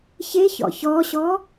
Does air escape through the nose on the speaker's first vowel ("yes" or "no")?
no